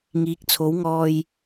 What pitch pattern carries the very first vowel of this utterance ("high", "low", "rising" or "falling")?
rising